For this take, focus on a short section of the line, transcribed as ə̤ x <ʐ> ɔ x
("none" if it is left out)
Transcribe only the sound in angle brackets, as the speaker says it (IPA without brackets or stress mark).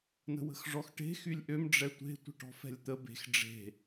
ʐ